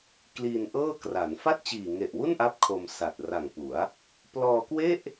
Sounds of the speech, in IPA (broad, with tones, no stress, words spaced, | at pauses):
kliː˧nʔɤː˥˩kra˩˦n fa˥˩t̚t͡ɕiː˨˩ŋe˨˩ʔwu˥˩n ʔa˥˩p̚kʰo˧msa˨˩t̚ ra˨˩ŋpu˩˦a̯ | plɔː˧kwe˥˩ʔ